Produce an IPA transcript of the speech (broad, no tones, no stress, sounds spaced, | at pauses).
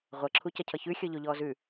ʁʷ ɐ ǁʰ u c ɐ cʰ ʌ ç ʉ xʲ ɔ ʎ o ʎ ɔː z ʉ